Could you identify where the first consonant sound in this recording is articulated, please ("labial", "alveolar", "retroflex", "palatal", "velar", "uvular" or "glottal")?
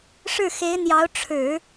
retroflex